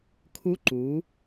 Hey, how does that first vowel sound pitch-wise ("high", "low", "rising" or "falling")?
rising